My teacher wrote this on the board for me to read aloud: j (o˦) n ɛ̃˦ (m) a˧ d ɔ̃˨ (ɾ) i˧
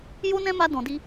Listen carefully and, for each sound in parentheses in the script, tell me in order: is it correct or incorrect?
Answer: correct, correct, incorrect

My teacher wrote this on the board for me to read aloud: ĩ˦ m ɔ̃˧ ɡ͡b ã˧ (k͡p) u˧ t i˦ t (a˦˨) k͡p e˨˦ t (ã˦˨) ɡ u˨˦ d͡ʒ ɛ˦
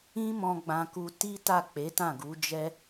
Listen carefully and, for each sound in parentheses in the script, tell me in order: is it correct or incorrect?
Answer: incorrect, correct, correct

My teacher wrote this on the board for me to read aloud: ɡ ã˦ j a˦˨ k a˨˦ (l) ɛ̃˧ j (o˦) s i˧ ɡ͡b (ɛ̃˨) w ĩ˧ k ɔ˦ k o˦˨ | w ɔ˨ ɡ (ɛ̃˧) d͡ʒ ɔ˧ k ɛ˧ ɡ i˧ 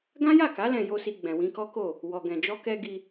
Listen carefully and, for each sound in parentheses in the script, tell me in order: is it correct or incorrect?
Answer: correct, correct, correct, incorrect

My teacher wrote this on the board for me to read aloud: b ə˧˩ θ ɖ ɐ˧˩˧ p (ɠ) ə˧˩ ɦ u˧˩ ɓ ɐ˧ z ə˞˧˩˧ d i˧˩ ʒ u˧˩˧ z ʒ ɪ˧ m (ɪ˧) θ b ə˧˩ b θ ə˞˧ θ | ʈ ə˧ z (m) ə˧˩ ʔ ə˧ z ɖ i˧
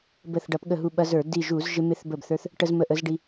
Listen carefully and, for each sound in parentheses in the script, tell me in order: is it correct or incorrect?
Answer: correct, correct, correct

